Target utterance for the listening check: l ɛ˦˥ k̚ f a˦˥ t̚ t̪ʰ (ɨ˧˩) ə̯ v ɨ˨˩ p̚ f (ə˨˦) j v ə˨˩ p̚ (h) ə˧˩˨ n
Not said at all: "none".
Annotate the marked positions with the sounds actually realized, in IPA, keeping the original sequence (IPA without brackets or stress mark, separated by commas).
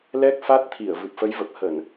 i˧˩, ə˨˦, h